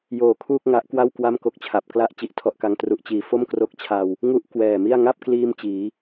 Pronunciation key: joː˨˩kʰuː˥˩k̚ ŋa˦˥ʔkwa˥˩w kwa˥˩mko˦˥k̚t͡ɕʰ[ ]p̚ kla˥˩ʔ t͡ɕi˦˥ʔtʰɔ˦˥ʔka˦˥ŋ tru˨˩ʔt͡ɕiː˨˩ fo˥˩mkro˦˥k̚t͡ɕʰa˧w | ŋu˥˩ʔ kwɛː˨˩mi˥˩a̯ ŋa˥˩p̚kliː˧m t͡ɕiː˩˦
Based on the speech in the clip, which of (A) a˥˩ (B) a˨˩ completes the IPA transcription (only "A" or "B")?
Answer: B